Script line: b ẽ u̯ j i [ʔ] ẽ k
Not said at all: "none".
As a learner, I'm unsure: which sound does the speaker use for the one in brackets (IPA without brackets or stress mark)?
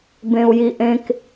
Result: ʔ